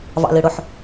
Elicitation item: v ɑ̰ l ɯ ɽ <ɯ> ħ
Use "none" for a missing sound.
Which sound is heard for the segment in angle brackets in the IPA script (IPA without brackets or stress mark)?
ʊ